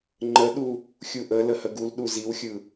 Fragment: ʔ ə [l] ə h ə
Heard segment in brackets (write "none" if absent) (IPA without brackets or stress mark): l